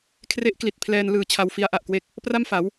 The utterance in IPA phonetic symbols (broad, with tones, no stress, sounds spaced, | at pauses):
kʰ r e˦˥ ʔ k l i˨˩ t̚ pʰ l ɛː˧ n l ɯː˨˩ t͡ɕʰ a˧ w f i˦˥ a̯ ʔ a˨˩ ʔ k w e˥˩ k̚ | p r a˥˩ m f a˩˦ w